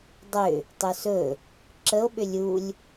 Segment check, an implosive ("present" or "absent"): present